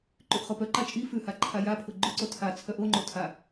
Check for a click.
present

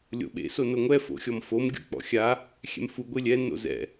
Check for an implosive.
present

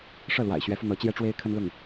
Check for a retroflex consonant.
present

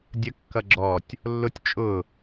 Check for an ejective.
present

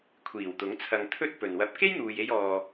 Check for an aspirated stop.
present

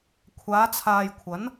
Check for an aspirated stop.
present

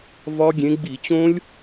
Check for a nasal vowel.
present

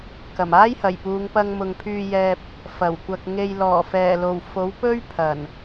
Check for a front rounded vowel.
present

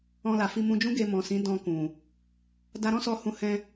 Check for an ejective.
absent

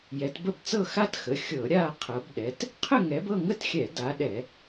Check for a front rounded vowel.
absent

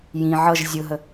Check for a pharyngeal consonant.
present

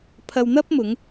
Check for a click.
absent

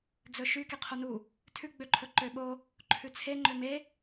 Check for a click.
present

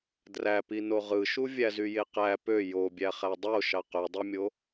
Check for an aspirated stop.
absent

